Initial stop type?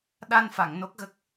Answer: implosive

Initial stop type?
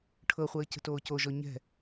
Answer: aspirated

